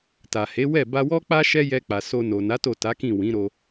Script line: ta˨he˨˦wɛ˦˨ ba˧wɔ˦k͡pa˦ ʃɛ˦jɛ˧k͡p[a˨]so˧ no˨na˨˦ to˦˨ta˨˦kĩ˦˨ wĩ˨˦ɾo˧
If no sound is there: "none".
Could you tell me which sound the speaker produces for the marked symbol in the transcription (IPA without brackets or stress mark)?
a˨